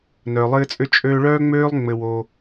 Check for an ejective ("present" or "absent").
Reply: present